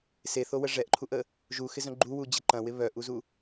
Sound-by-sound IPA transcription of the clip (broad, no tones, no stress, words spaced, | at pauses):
seθowə ʐɛʔǃʰuʔə | ʒuxɪzœ̃ ɡ͡ǃuwud͡ʑɪ ǃɐ̃wɪ βœʔuzu